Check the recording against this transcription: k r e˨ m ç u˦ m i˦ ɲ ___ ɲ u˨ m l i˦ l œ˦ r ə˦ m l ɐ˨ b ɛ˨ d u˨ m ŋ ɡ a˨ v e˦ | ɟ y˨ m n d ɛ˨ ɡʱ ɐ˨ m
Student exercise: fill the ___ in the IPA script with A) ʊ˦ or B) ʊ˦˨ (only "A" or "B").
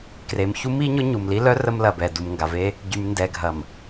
A